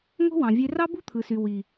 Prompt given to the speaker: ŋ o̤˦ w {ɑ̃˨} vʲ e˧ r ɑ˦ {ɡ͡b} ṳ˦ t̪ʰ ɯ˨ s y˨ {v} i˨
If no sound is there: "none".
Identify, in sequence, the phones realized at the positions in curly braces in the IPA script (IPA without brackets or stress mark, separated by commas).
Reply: ɑ̃˨, b, w